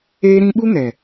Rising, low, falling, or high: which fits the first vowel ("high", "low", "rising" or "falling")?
high